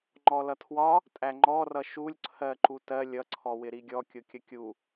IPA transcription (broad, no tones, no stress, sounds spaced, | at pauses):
ŋ͡ǃ ɔ l ʌ tʰ w ɒ | tʼ æ ŋ͡ǃ ɔ r ʌ ʃ u lʲ ǀʰ ɜ ǃ u t ɜ lʲ ʌ ǀʰ ɔ w ɪ ɾ i ɡʲ ɔ kʲ ʊ kʲ ə kʲ u